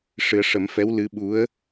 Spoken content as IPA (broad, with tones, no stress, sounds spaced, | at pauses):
ʂ ɨ˨˩˦ ə̯ ʂ ə˨˩˦ m f ɛ˧˥ w l ɨ˧˥ ɓ u˧˥ ə̯